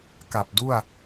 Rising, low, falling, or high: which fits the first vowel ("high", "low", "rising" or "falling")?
low